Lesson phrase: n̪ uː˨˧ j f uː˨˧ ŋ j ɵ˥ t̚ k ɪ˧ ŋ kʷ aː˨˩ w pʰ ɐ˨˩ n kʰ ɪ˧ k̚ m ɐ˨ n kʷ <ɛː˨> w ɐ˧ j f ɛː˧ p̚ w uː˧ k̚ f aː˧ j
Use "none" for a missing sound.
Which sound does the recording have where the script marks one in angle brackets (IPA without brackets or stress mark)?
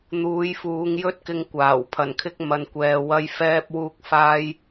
ɛː˨